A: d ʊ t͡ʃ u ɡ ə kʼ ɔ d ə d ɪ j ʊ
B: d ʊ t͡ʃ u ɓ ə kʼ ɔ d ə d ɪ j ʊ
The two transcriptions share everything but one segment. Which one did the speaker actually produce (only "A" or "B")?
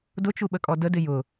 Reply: B